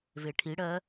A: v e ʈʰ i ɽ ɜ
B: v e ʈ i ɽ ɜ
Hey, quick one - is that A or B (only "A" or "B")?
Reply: A